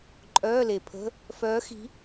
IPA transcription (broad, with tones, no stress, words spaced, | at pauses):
ǃʼœː˧˥˧le˨pʰə̤˧˥˧ | fœː˧˥xi̤˧˥